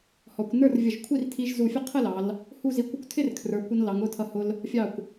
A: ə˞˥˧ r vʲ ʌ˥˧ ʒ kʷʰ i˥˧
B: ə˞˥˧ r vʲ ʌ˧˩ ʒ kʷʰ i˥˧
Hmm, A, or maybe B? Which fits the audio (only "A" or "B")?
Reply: B